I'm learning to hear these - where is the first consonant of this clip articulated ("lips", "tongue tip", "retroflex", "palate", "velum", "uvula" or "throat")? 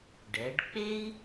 retroflex